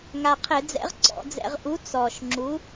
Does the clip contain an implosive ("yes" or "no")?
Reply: no